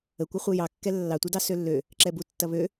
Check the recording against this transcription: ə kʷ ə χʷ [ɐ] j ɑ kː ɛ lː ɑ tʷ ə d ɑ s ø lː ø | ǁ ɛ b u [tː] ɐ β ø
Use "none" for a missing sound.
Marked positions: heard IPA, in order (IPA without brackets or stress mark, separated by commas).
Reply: ɐ, tː